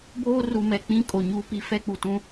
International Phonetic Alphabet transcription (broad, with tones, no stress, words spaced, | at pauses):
boː˦ru˨mɛ˨ k͡pĩ˦kʼo˨ ɲuː˦pi˦ fɛ˦k͡pu˨tũ˦